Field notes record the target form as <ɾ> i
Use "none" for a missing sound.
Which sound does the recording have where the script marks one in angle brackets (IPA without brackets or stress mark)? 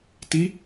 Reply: t